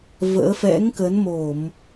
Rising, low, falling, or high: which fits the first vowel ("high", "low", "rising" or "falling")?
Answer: rising